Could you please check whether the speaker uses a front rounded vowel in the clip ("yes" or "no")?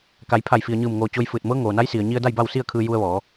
no